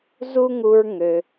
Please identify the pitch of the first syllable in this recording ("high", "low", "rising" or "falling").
high